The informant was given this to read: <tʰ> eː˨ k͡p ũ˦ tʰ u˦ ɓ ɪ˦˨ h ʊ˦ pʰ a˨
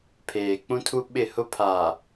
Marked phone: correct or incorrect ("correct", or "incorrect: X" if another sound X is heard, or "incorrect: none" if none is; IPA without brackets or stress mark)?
incorrect: pʰ